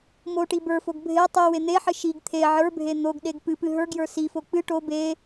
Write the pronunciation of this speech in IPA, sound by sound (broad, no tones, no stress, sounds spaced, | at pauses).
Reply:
m o ʈ i b ə˞ f o ɡ bʱ e tˤ ɨ w e n̪ e ħ ɨ ʃ i ɡ t̪ʰ e ʕ ə˞ bʱ e n̪ o ɡ ɗ e ɡ p ɨ p ɨ ɦ ə˞ ɡ j ə˞ s i f o k͡p ɨ ʈ o b e